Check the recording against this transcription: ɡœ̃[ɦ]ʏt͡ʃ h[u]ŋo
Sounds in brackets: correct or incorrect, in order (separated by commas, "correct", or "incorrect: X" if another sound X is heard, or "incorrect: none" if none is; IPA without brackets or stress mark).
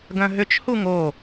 correct, correct